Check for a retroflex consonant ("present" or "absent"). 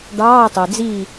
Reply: present